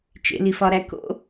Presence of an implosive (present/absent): absent